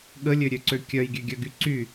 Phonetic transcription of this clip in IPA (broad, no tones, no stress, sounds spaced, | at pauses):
ɠ ə lʲ ø ɾʲ ø ǀ ø kʲ œ j ɡʲ ø ɡʲ œ ɡ y ǀ y